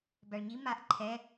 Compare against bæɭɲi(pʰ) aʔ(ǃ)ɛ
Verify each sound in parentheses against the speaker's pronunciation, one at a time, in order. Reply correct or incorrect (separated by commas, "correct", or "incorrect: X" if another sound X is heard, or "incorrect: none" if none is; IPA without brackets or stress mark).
incorrect: m, incorrect: ǃʰ